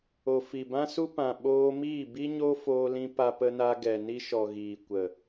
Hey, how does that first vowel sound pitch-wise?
low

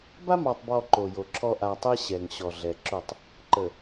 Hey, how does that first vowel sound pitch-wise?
high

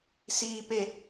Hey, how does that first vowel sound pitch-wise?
low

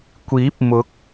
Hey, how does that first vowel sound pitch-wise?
rising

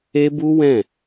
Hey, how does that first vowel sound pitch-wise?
high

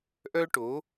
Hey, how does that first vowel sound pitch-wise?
high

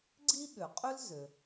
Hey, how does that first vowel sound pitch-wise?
high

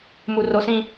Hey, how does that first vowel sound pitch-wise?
high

